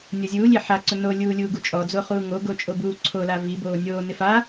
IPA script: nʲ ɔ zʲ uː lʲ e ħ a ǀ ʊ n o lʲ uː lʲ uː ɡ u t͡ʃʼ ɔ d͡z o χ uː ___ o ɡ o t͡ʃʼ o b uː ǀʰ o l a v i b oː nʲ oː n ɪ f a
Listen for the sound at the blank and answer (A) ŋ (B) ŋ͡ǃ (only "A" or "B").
A